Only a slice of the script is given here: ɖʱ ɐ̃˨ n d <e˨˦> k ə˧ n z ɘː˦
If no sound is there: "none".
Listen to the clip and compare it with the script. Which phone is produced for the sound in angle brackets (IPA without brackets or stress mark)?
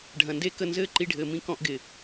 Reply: e˦